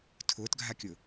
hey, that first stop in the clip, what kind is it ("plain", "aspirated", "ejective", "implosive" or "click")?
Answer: aspirated